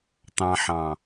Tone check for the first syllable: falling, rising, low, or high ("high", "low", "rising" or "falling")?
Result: low